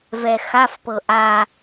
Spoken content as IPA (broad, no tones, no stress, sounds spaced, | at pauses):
v ɛ x a f p ɤ ʔ a